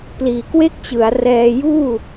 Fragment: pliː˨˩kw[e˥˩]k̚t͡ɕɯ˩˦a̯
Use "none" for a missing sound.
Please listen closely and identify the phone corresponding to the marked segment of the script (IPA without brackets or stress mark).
e˥˩